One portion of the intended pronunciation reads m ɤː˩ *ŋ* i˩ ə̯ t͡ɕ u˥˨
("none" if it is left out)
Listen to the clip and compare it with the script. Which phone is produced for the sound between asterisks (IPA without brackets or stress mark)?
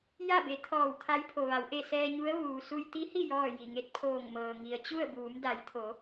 ŋ